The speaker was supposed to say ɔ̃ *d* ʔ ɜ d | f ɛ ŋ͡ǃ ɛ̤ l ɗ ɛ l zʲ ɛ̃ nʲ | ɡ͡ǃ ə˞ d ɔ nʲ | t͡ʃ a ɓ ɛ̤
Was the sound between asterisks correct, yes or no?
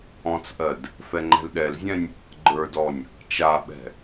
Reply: no